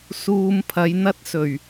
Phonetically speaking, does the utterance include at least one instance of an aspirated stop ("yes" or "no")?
yes